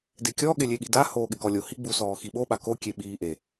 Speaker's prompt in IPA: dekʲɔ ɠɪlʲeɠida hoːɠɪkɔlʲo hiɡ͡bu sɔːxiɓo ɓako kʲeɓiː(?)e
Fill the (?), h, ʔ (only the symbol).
ʔ